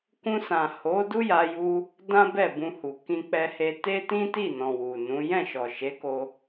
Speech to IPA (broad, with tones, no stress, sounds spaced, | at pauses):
k ũ˧ s ã˨ h o˨˦ d u˦ j a˧ j u˧ | d ã˦ b ɛ˦˨ b ũ˧ h u˨ k ĩ˧ k͡p ɛ˧ h e˧ t e˦ t ĩ˦ t i˦˨ n ɔ̃˨ w u˨ n ũ˨˦ j ɛ̃˦˨ ʃ ɔ˨ ʃ e˨˦ k o˧